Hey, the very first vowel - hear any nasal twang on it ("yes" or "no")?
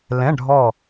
yes